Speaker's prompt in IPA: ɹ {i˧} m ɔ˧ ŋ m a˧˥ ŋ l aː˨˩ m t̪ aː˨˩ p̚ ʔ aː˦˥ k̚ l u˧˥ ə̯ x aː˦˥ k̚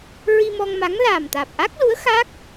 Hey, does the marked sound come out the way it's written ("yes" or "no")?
yes